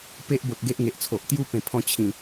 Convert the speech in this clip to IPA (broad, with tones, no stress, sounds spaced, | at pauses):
p e˦ ʔ b o˨ t̚ ɡ e˦ ʔ ŋ e˨ ʔ t͡sʰ o˨ ʔ t̪ j u˦ p ẽ˨˩ pʰ ɔ̃˧ t͡ɕʰ ĩ˨˩